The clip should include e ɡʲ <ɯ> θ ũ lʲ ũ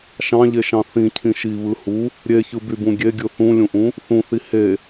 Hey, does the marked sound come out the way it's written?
yes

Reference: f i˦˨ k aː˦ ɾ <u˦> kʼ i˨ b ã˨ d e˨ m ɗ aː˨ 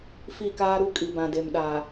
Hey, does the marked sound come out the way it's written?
yes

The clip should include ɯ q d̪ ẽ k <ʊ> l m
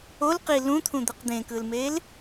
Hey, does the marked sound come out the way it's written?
no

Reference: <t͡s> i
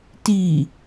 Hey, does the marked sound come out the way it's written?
no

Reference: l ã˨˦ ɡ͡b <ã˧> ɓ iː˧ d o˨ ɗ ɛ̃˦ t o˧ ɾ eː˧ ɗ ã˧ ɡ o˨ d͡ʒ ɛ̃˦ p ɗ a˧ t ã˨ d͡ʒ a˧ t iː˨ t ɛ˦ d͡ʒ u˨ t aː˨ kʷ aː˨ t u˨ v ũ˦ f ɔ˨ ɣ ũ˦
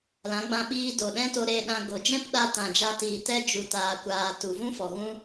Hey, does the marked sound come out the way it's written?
yes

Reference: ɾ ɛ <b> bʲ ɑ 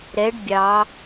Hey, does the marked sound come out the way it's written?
no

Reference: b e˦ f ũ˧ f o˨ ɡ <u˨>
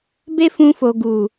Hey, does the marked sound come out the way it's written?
yes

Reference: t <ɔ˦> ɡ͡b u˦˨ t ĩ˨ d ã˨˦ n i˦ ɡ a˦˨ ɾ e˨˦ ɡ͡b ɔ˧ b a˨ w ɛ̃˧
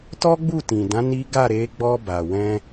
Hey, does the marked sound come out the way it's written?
yes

